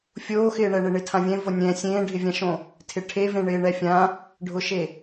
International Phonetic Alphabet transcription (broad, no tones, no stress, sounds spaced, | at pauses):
fʲ oː x ɪː ɳ ɛ ɳ e ɳ ɪ tʰ ã vʲ ɛ̃ v o nʲ ɛ̃ sʲ ẽː ɖʱ ɪ vʲ ã ʃ õ | tʰ ɪ ʈʰ e v ẽ ɳ ɪː ɳ ɛ fʲ ã | ɖʱ ʊ ʃ e